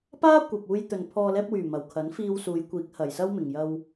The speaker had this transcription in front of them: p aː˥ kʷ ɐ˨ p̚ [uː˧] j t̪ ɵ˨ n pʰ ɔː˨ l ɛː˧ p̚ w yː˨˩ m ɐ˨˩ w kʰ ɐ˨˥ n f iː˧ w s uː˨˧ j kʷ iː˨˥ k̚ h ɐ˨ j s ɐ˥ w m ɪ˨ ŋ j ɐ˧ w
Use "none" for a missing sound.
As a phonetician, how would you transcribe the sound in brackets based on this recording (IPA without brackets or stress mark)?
uː˧